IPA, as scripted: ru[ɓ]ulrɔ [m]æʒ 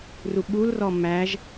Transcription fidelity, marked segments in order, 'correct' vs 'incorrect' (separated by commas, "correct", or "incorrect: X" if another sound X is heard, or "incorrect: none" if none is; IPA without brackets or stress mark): correct, correct